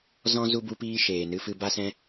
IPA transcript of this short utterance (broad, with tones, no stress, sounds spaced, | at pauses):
z ɔ̃˦ z u˧ b u˧ p iː˧ ʃ eː˨ n ɨ˧ f ɨ˧ b a˦ s ɛ̃˦